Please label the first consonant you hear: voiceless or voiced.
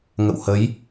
voiced